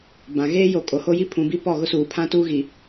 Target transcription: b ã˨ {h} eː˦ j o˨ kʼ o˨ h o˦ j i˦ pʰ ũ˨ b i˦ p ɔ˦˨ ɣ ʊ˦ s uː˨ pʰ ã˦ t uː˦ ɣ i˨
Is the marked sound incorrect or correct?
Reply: incorrect